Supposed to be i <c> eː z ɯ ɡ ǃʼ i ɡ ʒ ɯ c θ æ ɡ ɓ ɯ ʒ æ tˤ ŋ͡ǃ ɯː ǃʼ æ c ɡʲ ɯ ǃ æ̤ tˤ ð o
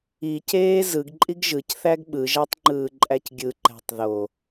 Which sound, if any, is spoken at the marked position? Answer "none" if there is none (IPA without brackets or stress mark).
c